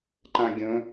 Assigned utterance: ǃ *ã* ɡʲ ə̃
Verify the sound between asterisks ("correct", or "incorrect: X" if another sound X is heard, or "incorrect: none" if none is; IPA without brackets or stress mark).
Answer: correct